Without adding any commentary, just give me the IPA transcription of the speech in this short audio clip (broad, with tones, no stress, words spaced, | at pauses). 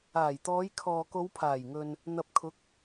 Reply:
aː˨˩jt̪ɔː˨˧jkʰɔː˨ ko˨˧wpʰaː˨˩jŋɵ˨n | n̪ɐ˨p̚kʰʊ˨˥k̚